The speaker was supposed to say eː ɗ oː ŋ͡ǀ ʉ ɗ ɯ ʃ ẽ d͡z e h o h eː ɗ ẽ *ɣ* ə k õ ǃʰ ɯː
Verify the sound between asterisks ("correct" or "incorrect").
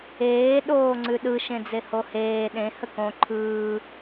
incorrect